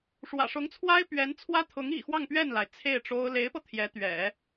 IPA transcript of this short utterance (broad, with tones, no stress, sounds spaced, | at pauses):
ʂ w ä̰˨˩ ʂ ʊ˧˥ ŋ t͡sʰ w a˥ ɪ̯ p ɥ ɛ˧˥ n t͡sʰ w ä˥ t̪ʰ ʊ˧˥ ŋ ḭ˨˩ x w ɑ˥˧ ŋ p ɥ ɛ˥˩ n l a˩ ɪ̯ t͡sʰ e˥˩ ɪ̯ ʈ͡ʂ o˥ ʊ̯ l e˧˥ ɪ̯ p ɤ˧ t̪ʰ j ɛ˧˥ t̪ ɥ ɛ̰˨˩˦